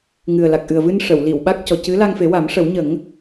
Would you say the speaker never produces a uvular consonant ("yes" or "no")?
yes